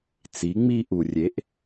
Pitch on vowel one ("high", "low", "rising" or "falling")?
rising